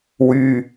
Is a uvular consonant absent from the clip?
yes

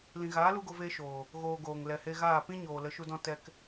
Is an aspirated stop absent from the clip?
yes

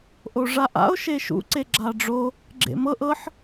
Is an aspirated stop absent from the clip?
yes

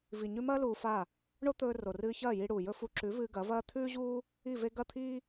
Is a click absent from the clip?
no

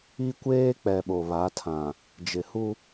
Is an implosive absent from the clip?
no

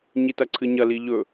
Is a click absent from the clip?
no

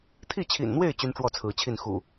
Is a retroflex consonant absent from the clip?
no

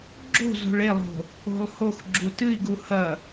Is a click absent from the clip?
no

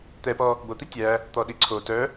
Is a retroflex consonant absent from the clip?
yes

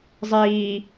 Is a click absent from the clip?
yes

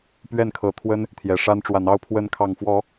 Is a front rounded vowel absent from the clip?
yes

